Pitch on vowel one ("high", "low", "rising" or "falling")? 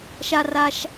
low